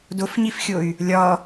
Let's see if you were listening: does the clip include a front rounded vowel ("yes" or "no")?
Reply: yes